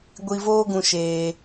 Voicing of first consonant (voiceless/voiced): voiced